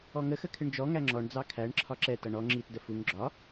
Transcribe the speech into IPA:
ɔ ŋ ə x ə kʰ ɪ ɳ d͡ʒ ɔ ŋ æ ŋ͡ǁ ɔ ɳ d͡z ɑ kʰ æ ɳ ǁʰ ɒ ǁ ɛ t ʌ ɳ ɔ ŋ͡ǁ i t d ə f u ŋ ɡ͡ǁ ɒ

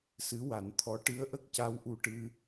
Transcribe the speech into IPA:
s ɨ˧˥ w a˨˩˦ n t̪ʰ ɔ˧˥ ʈ ɨ˧˥ ə̯ ʔ ə˦˥ k̚ c a˧˥ w ʔ u˧ ʈ ɨ˧

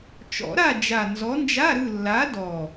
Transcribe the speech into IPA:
t͡ʃ ɔ̰˨˩˦ ɾ a˦˨ d͡ʒ a˨˩ n z ɔ˨˦ n d͡ʒ a˧˥˧ ɾ ɯ˦˨ lː a˨˦ d ɔ˨˩

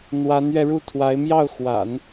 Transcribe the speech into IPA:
n̪ w a˧˥ n ɥ ɛ˧ ɻ u˥˩ t̪ʰ w a˧˥ ɪ̯ m j ɑ˥˩ ʊ̯ x w a̰˨˩˦ n

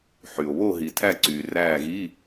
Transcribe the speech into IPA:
ħ y˨ o̯ β o˦˨ ɦ i˨ tʰ æ˦˨ ǀ yː˨ r æː˦˨ ɣ i˧˥˧

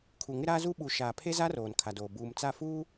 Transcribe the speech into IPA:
kʰ u˨ ŋ ɪ˦ ɾ aː˦ z uː˦ ɓ u˨ ʃ aː˨ pʰ e˦ z a˦ r oː˨ n kʰ a˨ d oː˨ b uː˨ m t͡s a˦˨ f uː˦

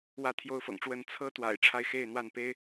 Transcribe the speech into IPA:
w ä˥˨ t̪ʰ j o˦ ʊ̯ f ɤ̰˨˩ ŋ ʈ͡ʂ w ə˥˨ n t͡sʰ ɤ˦ t̪ w a̰˨˩ ɪ̯ ʈ͡ʂʰ a˦ ɪ̯ x e˥˨ ɪ̯ n̪ w a˥˨ n p e˦ ɪ̯

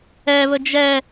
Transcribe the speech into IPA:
ɛ β ə d͡ʒ ɛ

